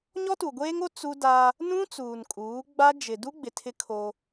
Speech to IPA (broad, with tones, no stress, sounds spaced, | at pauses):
ɲ ɔ˦ t u˨ ɡʷ eː˦ ŋ o˦ t͡s u˦ d a˦ | n ũ˦ t͡s uː˨ n kʼ uː˨˦ ɡ͡b a˦ d͡ʒ ɪ˨ d u˦ ɡ͡b ɪ˨ tʰ ɪ˦ kʰ o˦